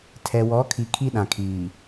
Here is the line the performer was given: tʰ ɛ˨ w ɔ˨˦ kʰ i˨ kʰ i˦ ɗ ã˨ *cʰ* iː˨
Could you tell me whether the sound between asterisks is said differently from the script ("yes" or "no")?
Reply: yes